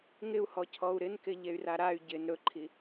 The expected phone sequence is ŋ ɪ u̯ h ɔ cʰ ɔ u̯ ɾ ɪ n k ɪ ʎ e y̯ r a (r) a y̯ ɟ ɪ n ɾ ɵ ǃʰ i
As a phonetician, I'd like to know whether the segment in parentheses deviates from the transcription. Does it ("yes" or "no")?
yes